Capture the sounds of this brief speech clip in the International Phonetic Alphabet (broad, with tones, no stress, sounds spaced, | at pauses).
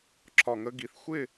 ǁ ɒ˨ ŋ ə˧ ɡ i˨ θ xʷ ɪ˦˨